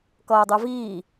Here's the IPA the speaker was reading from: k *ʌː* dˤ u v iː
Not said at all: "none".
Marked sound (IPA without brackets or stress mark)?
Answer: ʌː